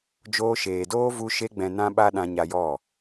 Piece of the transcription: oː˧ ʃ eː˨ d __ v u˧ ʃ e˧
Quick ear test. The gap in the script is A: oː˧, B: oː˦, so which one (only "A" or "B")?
B